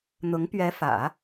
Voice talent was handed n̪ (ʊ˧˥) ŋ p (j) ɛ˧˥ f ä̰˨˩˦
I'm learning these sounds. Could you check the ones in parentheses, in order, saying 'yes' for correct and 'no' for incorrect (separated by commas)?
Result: yes, no